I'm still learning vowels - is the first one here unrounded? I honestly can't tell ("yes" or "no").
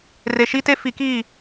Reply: yes